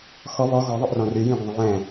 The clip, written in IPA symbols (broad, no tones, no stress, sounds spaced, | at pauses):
x ɔ β ɔ ɣ ɔ ðˤ ə ʔ r ɔ̃ r y j ĩ ɡʷ ə̃ ðˤ ə̃ j ɛ̃